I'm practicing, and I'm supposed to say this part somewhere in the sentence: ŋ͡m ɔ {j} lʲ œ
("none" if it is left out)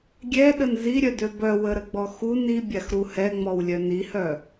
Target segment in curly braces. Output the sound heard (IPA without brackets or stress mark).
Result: w